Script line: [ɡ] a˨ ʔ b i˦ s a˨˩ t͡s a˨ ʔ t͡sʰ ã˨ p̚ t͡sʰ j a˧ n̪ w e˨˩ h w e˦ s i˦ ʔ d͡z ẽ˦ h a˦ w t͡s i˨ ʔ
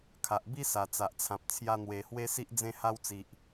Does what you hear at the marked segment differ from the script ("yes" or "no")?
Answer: yes